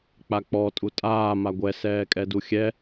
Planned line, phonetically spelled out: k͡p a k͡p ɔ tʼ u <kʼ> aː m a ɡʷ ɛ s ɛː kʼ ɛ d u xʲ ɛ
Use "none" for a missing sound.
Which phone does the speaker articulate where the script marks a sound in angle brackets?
tʼ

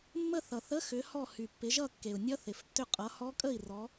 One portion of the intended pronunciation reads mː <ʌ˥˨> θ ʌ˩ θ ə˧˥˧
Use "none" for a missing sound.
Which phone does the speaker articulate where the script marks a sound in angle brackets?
ə˥˨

